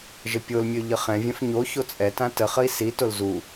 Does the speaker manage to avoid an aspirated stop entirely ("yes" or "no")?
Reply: yes